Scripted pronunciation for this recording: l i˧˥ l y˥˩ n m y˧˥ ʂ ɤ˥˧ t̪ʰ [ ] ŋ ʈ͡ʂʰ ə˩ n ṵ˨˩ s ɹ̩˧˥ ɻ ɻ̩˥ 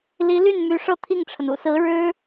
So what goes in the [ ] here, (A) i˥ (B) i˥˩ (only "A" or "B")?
B